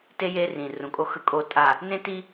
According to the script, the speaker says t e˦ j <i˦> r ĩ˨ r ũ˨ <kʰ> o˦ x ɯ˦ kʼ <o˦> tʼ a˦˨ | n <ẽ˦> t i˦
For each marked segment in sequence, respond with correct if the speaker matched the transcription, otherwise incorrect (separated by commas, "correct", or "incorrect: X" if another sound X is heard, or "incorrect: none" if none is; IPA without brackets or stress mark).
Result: incorrect: e˦, incorrect: kʼ, correct, correct